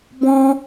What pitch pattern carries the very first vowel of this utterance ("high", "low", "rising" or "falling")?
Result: high